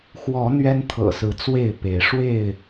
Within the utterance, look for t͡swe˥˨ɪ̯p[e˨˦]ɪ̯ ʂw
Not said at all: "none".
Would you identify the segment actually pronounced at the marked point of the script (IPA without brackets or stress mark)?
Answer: e˨˦